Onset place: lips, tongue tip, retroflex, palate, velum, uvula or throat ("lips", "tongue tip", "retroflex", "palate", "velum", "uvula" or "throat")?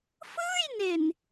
lips